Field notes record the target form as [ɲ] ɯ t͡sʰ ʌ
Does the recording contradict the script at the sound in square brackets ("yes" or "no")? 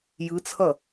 yes